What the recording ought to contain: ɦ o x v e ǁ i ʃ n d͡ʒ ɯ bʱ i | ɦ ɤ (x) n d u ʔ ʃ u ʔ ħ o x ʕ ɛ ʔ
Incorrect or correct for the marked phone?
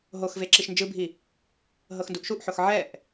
correct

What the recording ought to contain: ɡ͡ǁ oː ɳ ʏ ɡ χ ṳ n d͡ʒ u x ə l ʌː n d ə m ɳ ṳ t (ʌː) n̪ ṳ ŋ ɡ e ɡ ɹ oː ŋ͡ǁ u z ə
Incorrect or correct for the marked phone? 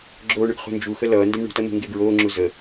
incorrect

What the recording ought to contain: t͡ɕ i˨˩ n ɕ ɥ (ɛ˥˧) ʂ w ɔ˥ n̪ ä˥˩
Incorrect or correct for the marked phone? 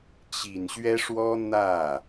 incorrect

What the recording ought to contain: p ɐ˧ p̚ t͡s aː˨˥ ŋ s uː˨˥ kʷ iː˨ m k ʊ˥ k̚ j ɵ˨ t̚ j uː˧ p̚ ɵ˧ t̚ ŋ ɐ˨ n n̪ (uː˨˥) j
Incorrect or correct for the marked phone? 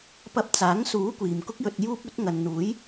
correct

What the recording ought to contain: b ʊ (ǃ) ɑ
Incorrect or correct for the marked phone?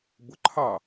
incorrect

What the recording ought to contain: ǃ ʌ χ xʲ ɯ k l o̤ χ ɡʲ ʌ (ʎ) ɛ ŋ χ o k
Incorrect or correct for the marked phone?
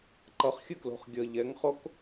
correct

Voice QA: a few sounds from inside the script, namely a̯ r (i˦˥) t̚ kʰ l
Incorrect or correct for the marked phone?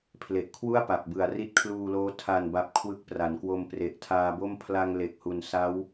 correct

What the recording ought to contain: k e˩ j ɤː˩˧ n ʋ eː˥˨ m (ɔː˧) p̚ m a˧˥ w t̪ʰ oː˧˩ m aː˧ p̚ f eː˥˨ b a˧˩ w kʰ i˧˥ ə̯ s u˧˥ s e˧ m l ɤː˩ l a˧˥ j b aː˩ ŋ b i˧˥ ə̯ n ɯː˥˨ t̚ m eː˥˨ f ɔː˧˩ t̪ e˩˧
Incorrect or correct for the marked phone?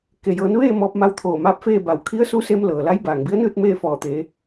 correct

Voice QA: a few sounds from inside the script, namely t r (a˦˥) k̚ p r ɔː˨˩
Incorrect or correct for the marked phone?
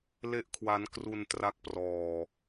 correct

